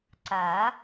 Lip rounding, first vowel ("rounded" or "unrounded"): unrounded